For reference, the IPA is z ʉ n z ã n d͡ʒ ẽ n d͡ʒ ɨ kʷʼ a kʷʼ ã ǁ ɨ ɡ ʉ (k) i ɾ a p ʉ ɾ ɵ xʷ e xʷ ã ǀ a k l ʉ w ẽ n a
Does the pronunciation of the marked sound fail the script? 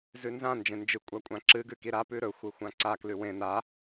no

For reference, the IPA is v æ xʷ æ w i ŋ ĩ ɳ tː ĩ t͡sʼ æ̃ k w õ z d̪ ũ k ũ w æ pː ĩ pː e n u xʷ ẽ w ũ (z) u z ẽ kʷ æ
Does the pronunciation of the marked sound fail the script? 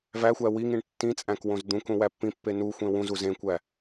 no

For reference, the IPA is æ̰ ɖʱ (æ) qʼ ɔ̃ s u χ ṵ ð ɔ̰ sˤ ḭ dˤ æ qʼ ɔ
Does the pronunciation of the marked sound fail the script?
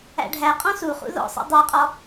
no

